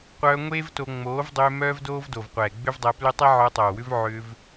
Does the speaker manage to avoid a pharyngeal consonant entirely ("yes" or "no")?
no